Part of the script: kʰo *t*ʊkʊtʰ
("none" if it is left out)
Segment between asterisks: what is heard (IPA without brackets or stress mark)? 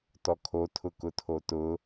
tʰ